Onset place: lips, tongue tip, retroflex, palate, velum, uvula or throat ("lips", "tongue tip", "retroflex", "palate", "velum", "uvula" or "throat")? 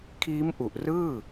velum